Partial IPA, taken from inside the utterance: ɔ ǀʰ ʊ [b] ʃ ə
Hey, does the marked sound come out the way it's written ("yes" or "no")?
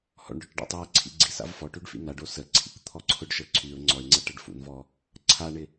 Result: no